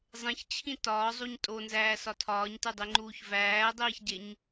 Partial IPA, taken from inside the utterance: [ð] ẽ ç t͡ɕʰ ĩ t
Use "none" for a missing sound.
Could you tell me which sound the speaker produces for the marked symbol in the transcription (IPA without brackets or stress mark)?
zˤ